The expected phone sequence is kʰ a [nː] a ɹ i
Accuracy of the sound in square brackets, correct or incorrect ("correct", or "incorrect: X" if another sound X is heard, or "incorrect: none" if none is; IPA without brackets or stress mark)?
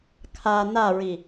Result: incorrect: n